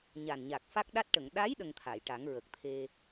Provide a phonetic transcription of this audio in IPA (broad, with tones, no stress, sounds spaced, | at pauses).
ɲ a˨˩ n ɲ a˨˩ k̚ f a˦˥ k̚ ɗ a˦˥ t̚ ʈ ə˨˩˨ ŋ ɗ a˧˥ j ɗ ə˧ ŋ t̪ʰ a˨˩˨ j ʈ a˨˩˦ ŋ ɹ ə˨˩ k̚ t̪ʰ e˧